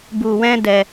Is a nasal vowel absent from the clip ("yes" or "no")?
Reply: no